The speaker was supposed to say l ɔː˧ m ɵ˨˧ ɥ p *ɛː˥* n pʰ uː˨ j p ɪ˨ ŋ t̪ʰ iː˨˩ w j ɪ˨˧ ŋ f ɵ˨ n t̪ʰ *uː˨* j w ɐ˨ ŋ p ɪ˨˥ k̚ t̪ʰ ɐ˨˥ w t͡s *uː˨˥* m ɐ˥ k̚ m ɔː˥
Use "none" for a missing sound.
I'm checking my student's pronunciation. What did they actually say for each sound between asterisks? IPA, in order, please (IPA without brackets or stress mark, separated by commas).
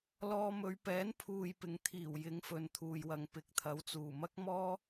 ɛː˨˥, uː˨, uː˨˩